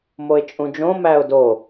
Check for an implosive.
absent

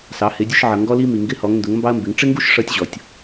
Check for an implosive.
absent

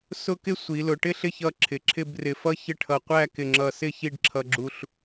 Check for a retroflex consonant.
present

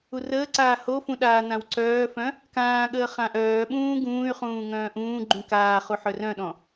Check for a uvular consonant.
present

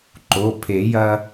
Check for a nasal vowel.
absent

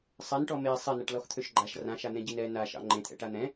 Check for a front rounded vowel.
present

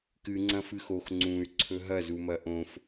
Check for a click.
present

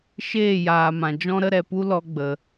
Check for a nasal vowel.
present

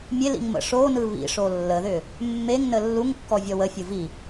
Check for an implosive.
absent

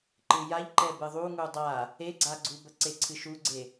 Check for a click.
present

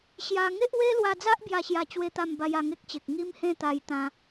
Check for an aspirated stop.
absent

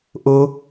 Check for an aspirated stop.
absent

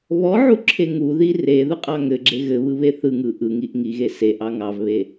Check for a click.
present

